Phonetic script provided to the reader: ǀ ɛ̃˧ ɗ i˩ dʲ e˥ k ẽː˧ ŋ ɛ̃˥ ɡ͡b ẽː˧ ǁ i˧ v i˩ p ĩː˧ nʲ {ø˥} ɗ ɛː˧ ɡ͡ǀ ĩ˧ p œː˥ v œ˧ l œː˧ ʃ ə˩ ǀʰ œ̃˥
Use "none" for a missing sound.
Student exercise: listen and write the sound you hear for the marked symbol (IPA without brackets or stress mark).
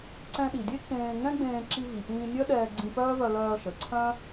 œ˥